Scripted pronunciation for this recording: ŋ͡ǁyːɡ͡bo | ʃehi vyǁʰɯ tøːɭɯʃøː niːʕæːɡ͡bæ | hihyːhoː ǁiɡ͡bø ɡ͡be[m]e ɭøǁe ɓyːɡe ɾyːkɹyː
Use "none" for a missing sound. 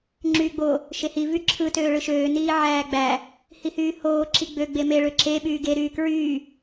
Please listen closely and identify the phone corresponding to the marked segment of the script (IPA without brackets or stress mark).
m